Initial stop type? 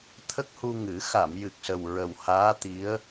aspirated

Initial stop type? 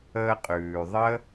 ejective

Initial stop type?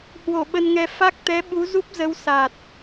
implosive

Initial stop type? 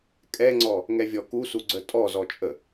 ejective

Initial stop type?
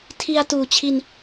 aspirated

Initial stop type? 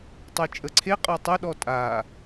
plain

